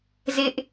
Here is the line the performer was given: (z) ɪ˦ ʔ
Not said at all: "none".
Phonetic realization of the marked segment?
z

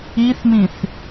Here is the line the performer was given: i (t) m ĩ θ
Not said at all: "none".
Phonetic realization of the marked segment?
θ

